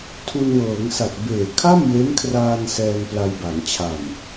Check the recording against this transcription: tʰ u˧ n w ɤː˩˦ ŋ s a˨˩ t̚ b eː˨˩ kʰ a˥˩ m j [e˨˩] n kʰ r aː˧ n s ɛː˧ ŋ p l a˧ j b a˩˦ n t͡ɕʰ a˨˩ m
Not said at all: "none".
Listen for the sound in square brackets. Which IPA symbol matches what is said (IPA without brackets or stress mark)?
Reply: e˦˥